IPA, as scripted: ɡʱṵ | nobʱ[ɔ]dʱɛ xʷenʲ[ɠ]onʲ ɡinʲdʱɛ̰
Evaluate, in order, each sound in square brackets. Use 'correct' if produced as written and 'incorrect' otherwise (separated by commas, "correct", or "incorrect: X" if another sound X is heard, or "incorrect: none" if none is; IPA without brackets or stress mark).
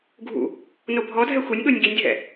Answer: correct, correct